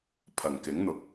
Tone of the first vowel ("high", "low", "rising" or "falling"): low